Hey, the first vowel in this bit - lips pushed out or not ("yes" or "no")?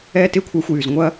no